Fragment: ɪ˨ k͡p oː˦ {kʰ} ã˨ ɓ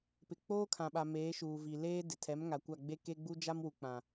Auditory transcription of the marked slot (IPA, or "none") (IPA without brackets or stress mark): kʰ